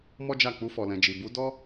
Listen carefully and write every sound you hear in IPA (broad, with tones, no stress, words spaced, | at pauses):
mɔ˦d͡ʒa˦˨ k͡pu˧fɔ˨lɛ̃˨d͡ʒi˨ bu˨˦ dɔ˦